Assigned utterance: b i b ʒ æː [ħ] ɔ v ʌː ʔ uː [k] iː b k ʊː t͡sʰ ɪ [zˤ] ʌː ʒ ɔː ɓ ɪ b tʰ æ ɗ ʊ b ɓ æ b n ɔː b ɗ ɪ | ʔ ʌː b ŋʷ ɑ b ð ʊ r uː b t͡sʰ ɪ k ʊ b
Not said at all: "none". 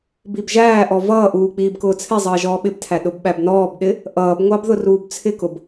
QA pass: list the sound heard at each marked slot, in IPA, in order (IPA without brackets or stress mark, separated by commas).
ʔ, k͡p, zˤ